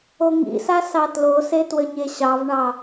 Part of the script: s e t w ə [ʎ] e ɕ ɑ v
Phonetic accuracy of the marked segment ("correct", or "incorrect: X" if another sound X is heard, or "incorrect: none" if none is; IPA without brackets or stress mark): incorrect: ɲ